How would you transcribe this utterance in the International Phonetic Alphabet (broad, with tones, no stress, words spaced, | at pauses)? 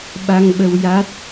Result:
ɓa˧ŋɓə˧w ja˦˥t̚